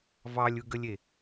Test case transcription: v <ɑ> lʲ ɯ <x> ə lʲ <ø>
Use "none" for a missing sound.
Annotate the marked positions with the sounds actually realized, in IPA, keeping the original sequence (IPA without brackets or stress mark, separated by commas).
ɑ, ɡ, e